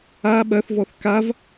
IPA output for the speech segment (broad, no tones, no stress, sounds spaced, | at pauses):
a ɓ ɐ θ v ɔ θ k a v